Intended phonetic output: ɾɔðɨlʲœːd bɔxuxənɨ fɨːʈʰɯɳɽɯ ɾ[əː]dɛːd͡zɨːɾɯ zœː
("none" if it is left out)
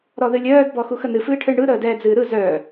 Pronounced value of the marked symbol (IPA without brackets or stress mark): əː